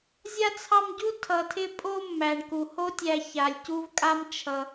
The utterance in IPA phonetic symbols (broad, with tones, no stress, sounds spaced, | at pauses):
zʲ a˥ t͡sʰ ɑ˦ m ɟ u˥ tʰ ʌ˨ tʰ ɪ˦ pʼ o˦ mː æ˩ ɳ k u˩ h o˥ tʲ æ˨ ç a˩ lʲ c u˥ v kʼ a˥ m t͡ʃʰ ʌ˩